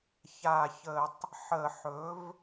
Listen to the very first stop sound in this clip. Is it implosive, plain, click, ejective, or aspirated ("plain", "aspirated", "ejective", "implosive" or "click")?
plain